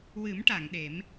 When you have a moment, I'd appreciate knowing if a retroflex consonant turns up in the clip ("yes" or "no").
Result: yes